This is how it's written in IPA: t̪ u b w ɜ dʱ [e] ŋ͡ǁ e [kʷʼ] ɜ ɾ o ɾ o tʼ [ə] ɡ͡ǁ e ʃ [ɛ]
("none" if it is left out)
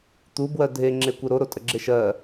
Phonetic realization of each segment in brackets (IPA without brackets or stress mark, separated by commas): e, kʷ, ə, ɜ